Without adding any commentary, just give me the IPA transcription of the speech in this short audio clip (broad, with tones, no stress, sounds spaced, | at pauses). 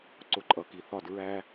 ǀ ʊ˧ ǃʼ ʌ˨ k i˨ θ ɒ˦˨ d ɹ æ˦